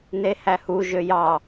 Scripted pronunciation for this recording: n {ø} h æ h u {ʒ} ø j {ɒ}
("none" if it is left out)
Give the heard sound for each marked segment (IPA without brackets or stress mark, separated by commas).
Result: e, ʒ, ɑ